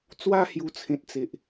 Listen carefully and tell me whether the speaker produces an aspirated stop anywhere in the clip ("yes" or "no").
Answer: yes